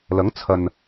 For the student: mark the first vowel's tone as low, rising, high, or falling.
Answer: rising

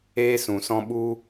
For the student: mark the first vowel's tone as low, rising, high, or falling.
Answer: high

